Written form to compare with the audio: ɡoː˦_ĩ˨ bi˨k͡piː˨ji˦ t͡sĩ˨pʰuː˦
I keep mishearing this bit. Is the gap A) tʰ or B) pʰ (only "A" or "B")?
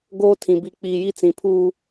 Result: A